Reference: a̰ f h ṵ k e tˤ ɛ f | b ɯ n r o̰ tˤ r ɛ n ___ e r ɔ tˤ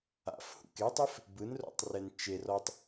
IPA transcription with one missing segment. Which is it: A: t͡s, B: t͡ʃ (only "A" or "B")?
B